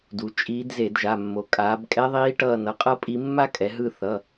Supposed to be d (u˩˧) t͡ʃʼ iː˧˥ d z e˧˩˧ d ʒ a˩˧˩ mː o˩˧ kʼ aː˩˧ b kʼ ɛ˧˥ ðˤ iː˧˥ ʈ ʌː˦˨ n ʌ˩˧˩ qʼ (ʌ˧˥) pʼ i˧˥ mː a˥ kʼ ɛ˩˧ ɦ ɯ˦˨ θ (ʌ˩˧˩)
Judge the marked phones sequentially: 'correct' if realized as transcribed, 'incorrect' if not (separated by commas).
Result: correct, incorrect, correct